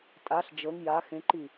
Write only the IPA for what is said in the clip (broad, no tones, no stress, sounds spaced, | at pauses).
tʼ a ɬ d͡ʒ ɤ ŋ j a x ẽ ǃ i